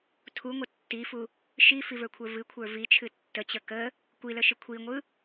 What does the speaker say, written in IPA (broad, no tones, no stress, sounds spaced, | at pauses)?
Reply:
tʰ u ŋʷ ə tː i f u | ʃ i f i v ə˞ kʷʰ ə˞ v ɨ kʷʰ ə˞ v i t͡ʃʰ ɨ tː ə t͡ɕ ə k ə | kʷ i l ə ʃ ɯ kʷʰ i ŋʷ ɯ